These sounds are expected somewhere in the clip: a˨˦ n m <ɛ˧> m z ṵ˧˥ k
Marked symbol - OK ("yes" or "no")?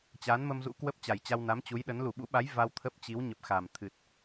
no